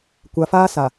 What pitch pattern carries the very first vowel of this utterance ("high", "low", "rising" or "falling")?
low